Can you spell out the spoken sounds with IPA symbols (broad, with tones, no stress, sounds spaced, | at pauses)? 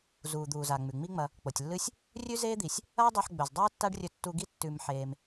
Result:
z uː˩ d̪ uː˩ z a˩ ŋ͡m ʉ˩ ŋ͡m i˥ ŋ͡m ɐ˧ | k͡p o˩ tʲ lː ɨ˥ sʲ | rʲ ʉ˥ z eː˥ d̪ i˩ sʲ | ɐː˥ dˤ o˧ ħ ɡ͡b ɵ˩ z dˤ uː˥ tː a˥ ɖ rʲ ɵ˧ tː u˧ ɡ i˥ tː ʉ˧ m ħ eː˧ m